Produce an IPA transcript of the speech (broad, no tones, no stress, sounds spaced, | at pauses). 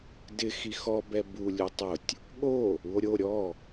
d ɪ x i x ɔ b ɛ b u lʲ u tˤ ʊ tʲ | ɠ o | u o̯ ɾʲ o ɾʲ ɔ